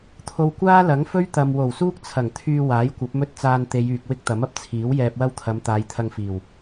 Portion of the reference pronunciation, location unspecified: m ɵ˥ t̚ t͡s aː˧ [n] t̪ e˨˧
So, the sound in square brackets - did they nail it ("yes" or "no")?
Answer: yes